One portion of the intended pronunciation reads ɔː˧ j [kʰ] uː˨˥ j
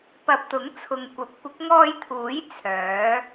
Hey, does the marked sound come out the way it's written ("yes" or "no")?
no